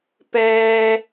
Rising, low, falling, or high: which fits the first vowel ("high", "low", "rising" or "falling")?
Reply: high